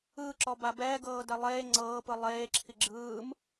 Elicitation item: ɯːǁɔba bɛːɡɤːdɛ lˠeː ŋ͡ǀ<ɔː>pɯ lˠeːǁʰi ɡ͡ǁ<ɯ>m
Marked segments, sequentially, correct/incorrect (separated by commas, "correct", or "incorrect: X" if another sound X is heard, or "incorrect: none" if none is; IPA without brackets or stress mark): incorrect: ɤː, incorrect: ɯː